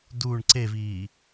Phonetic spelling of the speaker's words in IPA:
d u ɳ ǀ e v iː

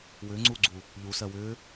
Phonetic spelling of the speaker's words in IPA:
w ʏː ŋ͡ǀ uː ɡ͡ǀ u | ʎ u s ɜ w ʏː

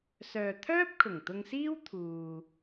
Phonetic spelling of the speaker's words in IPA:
s œː˨ t̪ʰ œː˥ p̚ kʰ ʊ˨˩ ŋ t̪ ʊ˧ ŋ s iː˥ w t̪ʰ uː˨

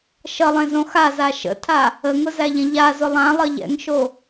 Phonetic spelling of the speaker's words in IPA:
ʃ ʌ lˠ ẽ z õ x a z a ʃ ə̰ tʰ a | ə ŋ ʊ z æ ʎ ɛ̃ ʎ a z ʊ lˠ ã lˠ ʌ ʎ ɛ̰ ŋ ʃ o

